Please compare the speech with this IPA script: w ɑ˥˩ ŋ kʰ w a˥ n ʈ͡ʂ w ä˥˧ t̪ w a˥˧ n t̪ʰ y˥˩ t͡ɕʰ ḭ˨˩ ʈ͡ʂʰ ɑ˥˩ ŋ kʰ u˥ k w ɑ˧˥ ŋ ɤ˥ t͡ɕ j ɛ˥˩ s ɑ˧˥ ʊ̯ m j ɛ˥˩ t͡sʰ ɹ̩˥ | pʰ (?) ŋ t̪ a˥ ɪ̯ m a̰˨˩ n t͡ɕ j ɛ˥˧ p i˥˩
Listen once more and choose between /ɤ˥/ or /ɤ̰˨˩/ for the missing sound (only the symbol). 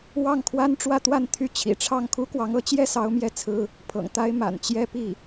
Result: ɤ̰˨˩